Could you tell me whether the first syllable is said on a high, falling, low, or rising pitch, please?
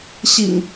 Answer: low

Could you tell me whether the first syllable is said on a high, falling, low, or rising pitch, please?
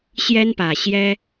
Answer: high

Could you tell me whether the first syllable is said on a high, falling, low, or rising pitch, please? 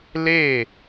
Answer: falling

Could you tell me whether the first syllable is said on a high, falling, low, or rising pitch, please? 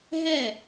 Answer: falling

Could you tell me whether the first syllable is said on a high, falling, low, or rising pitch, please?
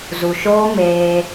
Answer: low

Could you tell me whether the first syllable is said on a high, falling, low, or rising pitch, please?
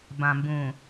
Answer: low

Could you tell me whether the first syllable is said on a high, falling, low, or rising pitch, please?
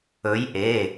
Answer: rising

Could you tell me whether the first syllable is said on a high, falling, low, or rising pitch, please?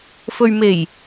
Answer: low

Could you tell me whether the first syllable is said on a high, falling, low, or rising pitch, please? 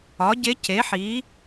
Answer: rising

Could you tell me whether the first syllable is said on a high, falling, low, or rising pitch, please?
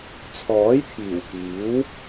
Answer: rising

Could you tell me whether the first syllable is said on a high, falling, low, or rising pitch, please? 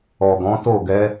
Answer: low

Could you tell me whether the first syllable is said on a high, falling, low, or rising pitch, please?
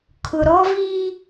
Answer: low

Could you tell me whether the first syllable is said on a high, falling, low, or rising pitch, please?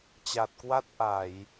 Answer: low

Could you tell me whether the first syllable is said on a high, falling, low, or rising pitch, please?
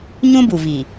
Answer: high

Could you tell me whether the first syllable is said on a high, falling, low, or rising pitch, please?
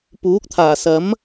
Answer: rising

